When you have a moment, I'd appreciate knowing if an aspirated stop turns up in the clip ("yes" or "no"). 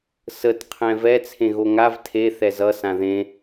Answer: yes